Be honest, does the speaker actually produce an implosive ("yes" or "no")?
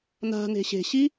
no